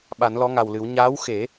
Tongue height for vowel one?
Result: low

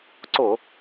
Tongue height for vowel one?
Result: high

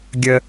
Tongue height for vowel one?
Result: mid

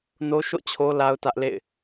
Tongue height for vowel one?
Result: mid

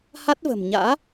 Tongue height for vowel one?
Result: low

